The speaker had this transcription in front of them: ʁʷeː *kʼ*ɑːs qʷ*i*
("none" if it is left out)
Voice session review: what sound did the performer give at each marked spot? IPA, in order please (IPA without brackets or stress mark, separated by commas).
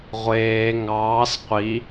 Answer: ŋ, i